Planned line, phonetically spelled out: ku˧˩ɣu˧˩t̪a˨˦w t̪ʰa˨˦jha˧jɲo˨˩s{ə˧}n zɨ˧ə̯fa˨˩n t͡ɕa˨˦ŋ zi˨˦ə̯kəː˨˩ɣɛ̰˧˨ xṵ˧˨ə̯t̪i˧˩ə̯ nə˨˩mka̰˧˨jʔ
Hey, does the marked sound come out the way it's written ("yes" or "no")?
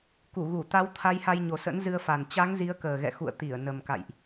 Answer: no